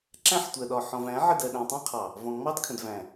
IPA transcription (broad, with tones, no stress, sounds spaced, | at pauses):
ǁ æ̃˦ ħ tʷ ɜ˨ ɗ ɒ˨ ħ ɔ̃˨ v æ̃˨˦ ʕ ə˦˨ d ɜ˨ ɗ æ̃˨ tˤ æ̃˦ qʰ ɑ˨ | v ɔ̃˨ ŋ͡m ɑ˦ d kʰ ə̃˨ d v æ̃˨